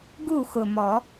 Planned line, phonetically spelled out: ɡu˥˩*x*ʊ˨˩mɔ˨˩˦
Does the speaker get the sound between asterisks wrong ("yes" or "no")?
no